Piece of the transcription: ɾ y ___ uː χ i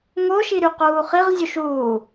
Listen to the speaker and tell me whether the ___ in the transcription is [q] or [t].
q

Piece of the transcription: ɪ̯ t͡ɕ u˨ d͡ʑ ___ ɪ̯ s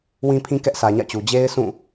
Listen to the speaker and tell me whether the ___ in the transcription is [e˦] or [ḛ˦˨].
e˦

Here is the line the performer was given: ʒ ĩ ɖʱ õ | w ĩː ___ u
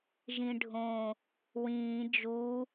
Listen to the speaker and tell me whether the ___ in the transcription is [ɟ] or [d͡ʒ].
d͡ʒ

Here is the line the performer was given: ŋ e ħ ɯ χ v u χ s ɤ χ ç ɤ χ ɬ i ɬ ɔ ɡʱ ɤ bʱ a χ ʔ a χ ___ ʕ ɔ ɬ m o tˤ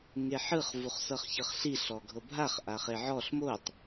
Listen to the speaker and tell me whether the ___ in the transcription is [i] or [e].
e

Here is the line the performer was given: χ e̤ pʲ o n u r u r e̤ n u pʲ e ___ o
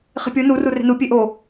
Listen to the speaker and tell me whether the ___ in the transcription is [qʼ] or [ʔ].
ʔ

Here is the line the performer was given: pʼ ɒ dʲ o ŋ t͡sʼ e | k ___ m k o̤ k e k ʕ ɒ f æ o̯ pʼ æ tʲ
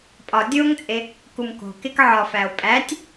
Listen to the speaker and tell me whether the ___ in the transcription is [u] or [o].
u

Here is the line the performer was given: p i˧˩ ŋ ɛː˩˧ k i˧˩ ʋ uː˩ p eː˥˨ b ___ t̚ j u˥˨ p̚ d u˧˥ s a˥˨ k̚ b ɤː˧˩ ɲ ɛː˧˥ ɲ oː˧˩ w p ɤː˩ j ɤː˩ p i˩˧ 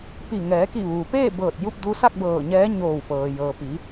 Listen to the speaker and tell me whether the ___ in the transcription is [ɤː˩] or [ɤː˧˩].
ɤː˧˩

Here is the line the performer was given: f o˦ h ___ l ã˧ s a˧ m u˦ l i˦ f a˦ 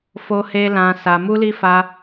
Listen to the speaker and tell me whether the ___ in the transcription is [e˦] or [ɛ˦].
e˦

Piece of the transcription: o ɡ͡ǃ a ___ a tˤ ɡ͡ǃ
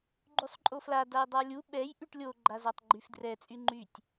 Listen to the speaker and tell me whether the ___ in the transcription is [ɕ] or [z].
z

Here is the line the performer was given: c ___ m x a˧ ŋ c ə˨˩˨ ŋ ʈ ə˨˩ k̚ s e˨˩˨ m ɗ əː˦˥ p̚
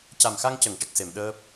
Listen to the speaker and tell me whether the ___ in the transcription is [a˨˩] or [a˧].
a˨˩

